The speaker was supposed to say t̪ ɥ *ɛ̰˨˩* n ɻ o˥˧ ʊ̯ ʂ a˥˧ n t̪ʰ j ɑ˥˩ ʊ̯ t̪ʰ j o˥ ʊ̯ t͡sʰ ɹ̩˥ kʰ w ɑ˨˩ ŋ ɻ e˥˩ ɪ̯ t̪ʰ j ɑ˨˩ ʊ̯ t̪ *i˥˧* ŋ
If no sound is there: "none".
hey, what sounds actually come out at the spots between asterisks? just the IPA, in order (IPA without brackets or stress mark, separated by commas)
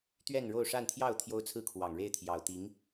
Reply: ɛ˥˧, i˧˥